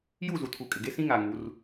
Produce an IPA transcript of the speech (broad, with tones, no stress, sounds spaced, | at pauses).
j u˦˨ z u˨ tʰ u˨ kʼ ɪ˨ ɡ e˦ s ĩ˦ ŋ a˨ ŋ u˨˦ r